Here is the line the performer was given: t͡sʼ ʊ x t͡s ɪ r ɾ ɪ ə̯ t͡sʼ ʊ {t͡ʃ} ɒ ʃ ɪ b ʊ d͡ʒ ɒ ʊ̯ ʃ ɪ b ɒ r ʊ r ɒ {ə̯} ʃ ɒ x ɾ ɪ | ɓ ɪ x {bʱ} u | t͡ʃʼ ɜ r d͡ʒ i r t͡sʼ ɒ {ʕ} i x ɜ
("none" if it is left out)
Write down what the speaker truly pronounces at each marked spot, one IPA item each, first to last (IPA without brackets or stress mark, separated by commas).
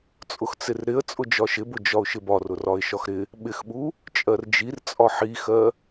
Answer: d͡ʒ, ɪ̯, ɓ, ħ